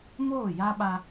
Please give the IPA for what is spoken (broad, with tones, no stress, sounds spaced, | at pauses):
m oː˦˨ j a˦ ɓ a˦